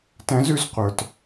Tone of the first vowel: rising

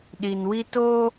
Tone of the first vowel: low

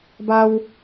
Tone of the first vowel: high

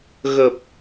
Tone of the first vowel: low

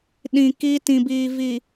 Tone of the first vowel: low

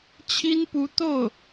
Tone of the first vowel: high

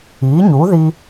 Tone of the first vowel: rising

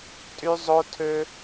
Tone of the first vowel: high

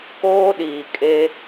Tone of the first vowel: high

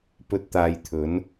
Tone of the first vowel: low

